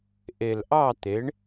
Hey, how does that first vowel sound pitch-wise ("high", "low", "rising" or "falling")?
low